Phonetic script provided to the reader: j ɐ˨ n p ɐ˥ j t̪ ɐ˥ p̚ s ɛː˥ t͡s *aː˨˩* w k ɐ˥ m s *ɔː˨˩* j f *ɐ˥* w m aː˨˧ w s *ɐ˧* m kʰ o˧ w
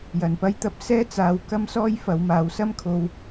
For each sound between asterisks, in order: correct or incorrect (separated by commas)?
incorrect, incorrect, incorrect, incorrect